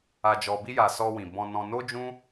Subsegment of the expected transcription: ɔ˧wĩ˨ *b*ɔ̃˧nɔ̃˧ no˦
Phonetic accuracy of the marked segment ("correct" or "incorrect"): correct